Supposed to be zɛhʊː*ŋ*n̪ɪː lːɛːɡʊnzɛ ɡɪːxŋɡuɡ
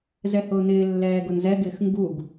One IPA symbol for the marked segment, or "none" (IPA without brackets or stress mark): none